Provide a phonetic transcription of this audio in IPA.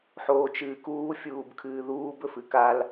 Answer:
ħ oː t͡ʃ ɨː k uː fʲ uː b kʰ ɨː ð uː b ɵ f ɨ k a l

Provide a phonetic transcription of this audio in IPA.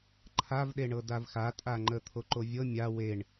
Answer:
ǃʰ a v ɗ e ɳ ɤ d a v x a tʼ a ŋ͡ǃ ə t̪ʰ o ǃ o vʲ ɤ mʲ a w e ɳ

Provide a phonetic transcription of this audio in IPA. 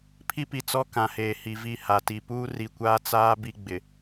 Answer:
pʰ i˦ p i˨ t͡s ɔ˦ k ã˨ h eː˨ h i˨ v i˦˨ h a˨ t i˨ p uː˦ r i˨ kʷ aː˦ t͡s aː˦ b i˦ ɡ͡b ɪ˨

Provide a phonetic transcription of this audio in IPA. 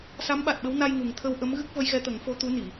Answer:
s a˧˥ m ɓ a˨˩ t̚ ɓ ə˧˥ w n a˧ j ŋ u˨˩ ŋ t̪ʰ ə˧ w ʔ ə˧˥ m ɣ ɨ˦˥ k̚ v ə˧˥ j ɣ ɛ˧˥ t̪ ə˨˩˦ ŋ f o˧˥ t̪ u˧˥ n i˨˩˨

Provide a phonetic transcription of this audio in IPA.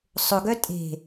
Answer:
sˤ ʊ ɡ œ tʼ e̤

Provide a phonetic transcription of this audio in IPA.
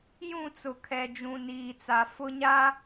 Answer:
j ũ˦˨ t͡s ʊ˨ kʰ ɛ˨ d͡ʒ ũ˨ n iː˨ t͡s a˨ f ʊ˦ ɲ a˦

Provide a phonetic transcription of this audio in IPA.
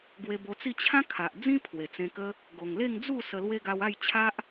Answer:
ɡ w e˧ b o˧ t͡s i˥˧ t͡ɕʰ ã˦ kʰ a˨ ʔ d͡z ĩ˦ pʰ w e˨˩ t͡s ẽ˧ k ə˦ | ɡ o˨˩ ŋ l e˥˧ ŋ d͡z u˥˧ s ə˧ l w e˦ ɡ a˧ w a˥˧ j t͡ɕʰ a˦ ʔ

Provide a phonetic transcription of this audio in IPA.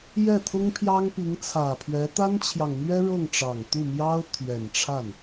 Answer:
j ɛ˥˩ t̪ʰ ʊ˥ ŋ pʰ j ɑ˥ ŋ p i˧˥ ŋ t͡sʰ ä˨˩ pʰ ɥ ɛ˧˥ t̪ a˥ n t͡ɕʰ j ɑ˨ ŋ n̪ ɥ ɛ˥ ɻ ɤ˥˩ ŋ ʈ͡ʂ ɑ˨˩ ŋ t̪ u˥˩ m j ɑ˥ ʊ̯ t̪ʰ ɥ ɛ˨˩ n ʈ͡ʂʰ a˥˩ n

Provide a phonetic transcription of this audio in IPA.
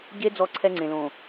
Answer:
ɟ e˦ d͡z ɔ˦˨ ǀʰ ɛ˦ ŋ͡ǀ ẽ˨ l õ˨

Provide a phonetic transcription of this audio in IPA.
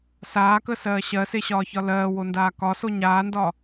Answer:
s aː k ə s ɜː ɕ ɜ s e ɕ ɒː ç ɒ l ɜː w o n d aː k ɒ s o ɲ aː n d ɒ

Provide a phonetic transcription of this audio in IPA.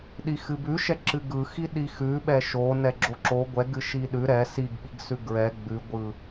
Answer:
ɗ i x ɨ b ʉ ʃ ɛ ǁ ɨ ɡ ɯ x i ɗ i x ʉ ɓ ɛ ʃ o n ɛ ɡ͡ǁ o ǁ o ɡʷ ɛ ɡ ɨ ʃ i ɗ ʉ ɾ ɛ s i ɡ ɓ i ɡ s ʉ ɡ ɹ ɛ ɡ͡b ʉ ɡʷ ɯ

